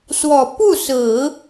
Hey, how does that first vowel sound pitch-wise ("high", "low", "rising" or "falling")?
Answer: low